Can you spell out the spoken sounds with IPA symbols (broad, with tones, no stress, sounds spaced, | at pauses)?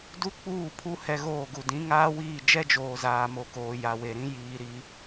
d u˦ k͡p uː˦˨ pʰ u˦ h ɛ˦ ɣ oː˦˨ ɡ u˨ d ĩ˨˦ ŋ aː˦ w iː˦˨ d͡ʒ ɛ˦ d͡ʒ oː˨ z aː˨ m o˨ k oː˨ j a˨ w e˨ ɾ ĩ˦ j iː˨ ɾ i˦